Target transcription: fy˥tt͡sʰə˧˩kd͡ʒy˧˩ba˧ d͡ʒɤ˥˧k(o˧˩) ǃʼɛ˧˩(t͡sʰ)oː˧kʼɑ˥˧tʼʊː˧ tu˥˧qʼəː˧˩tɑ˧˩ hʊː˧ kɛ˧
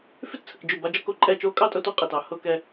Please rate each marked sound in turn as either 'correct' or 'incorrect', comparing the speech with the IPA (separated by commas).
correct, incorrect